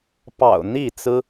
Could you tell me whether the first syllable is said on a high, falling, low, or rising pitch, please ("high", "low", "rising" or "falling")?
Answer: low